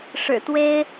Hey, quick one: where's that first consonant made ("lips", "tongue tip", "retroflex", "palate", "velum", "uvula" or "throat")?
retroflex